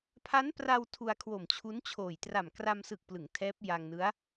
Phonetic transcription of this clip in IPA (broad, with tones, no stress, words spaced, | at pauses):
pʰa˦˥npra˧w tʰu˧a̯kʰwo˨˩mt͡ɕʰu˦˥nt͡ɕʰoː˨˩j tra˨˩mkra˧m sɯ˨˩k̚plɯ˩˦ŋ tʰɛː˦˥p̚ja˧ŋnɯ˦˥a̯